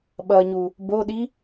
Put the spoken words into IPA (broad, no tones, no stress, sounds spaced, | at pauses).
ɓ ʌ ɲ u | b o ɗ i